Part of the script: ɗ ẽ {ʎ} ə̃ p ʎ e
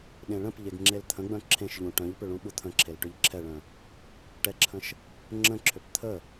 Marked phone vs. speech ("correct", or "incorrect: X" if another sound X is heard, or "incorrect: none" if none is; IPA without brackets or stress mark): incorrect: ɭ